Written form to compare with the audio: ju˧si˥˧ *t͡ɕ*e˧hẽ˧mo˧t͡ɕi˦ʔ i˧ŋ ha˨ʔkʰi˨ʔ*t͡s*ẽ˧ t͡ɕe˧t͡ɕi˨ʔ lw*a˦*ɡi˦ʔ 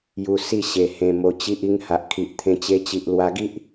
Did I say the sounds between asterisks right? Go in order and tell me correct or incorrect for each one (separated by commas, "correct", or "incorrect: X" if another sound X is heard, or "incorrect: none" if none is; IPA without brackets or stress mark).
incorrect: ɕ, incorrect: t̪ʰ, incorrect: a˧